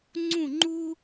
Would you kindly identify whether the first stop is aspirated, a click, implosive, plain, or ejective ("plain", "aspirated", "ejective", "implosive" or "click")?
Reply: click